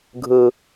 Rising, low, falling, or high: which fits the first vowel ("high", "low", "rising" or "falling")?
high